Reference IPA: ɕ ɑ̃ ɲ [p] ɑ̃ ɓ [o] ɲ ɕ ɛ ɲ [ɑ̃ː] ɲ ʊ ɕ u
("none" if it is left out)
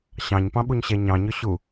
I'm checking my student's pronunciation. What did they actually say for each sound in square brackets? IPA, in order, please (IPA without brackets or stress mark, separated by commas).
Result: p, u, ɑ̃